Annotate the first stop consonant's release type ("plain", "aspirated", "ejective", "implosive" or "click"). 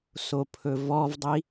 aspirated